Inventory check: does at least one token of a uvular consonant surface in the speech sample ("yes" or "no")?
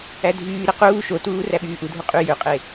yes